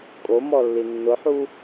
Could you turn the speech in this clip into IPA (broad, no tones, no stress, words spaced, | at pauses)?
kʼomɔlːi nːʊħu